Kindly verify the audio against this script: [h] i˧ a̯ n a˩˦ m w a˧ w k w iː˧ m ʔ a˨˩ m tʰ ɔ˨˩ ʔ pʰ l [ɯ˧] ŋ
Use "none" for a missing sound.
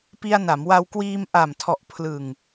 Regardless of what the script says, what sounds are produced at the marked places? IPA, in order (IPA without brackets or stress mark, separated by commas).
p, ɯ˨˩